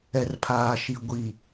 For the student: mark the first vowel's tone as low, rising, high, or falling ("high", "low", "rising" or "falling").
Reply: low